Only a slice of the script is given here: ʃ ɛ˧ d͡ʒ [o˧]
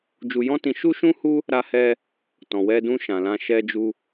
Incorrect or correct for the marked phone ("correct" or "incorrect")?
incorrect